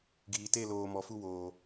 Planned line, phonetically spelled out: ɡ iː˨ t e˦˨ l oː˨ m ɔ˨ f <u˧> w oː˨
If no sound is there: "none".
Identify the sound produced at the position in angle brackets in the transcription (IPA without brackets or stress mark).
u˧